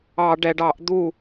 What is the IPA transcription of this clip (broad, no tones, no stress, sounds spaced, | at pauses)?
ɑ ɖ ɛ ɖ ɑ ʔ d̪ u